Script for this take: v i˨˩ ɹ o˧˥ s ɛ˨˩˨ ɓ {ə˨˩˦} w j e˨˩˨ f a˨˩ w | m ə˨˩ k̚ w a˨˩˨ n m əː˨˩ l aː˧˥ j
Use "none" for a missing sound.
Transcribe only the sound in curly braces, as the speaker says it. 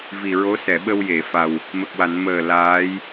ə˧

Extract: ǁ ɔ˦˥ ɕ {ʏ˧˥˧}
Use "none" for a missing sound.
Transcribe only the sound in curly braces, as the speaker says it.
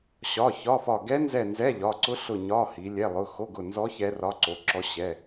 ɛ˧˥˧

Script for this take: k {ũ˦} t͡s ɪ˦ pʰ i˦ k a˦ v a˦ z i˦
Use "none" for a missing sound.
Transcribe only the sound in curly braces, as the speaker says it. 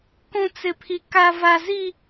ũ˦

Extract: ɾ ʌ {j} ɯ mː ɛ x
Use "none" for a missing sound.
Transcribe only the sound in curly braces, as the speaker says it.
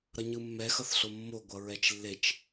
ɲ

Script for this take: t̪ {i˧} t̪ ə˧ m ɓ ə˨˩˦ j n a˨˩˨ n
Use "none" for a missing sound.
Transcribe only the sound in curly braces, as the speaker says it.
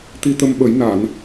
i˧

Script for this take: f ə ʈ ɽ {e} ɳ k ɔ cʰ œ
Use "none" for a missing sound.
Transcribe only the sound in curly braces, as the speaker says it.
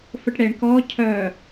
e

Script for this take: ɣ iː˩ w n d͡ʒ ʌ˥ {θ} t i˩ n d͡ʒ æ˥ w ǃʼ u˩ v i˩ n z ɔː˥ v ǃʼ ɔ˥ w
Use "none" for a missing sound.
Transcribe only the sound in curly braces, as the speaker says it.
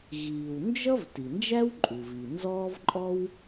v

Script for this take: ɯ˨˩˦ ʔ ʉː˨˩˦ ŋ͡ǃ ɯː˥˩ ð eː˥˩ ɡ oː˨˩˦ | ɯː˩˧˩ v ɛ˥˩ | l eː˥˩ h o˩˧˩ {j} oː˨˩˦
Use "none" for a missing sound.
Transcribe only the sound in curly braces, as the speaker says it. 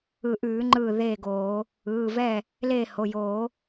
j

